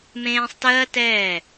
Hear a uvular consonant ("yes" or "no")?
no